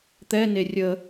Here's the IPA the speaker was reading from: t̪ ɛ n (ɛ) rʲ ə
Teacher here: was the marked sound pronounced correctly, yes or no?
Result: no